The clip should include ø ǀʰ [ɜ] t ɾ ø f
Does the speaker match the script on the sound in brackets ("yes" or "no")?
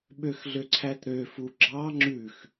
no